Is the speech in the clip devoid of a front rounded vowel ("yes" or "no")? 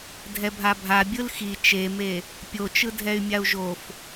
no